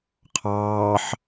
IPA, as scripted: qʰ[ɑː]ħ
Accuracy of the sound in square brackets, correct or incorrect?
correct